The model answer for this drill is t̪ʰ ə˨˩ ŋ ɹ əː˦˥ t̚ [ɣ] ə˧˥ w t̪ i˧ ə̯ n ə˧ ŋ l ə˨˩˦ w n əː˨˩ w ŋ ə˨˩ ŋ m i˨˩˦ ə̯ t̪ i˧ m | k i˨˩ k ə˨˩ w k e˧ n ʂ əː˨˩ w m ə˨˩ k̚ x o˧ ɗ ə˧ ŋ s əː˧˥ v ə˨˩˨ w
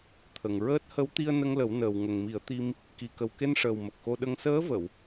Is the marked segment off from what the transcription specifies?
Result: yes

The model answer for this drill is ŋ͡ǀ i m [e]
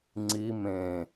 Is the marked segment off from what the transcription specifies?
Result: yes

